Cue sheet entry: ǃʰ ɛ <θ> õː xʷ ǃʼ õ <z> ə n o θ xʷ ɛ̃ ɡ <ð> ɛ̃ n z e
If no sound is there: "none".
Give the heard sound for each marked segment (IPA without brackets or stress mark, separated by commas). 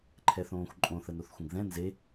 θ, θ, ð